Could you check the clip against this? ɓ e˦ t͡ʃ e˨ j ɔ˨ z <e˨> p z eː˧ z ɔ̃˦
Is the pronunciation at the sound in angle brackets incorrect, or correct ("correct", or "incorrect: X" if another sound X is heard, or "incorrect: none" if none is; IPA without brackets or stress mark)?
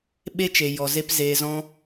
incorrect: e˦